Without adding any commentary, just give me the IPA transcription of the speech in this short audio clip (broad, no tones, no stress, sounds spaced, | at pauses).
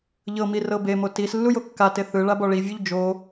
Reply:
ʎ ɤ m i r ɤ b e m o t i s lː u j o kː a t e θ ɯ ɭ a b ɔ ɭ i vʲ u ʎ d͡ʒ o